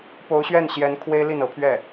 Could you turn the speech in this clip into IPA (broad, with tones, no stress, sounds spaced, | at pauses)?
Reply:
p o˧˥ ʊ̯ ɕ ɥ ɛ˥˩ n ɕ j ɛ˧˥ n kʰ w e˥ ɪ̯ l i˥˩ n ɤ˧˥ pʰ ɥ ɛ˥˩